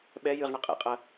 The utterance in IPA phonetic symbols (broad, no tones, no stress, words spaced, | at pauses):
ɓɛ jɨʁɳɐ qʼḛqʼɐ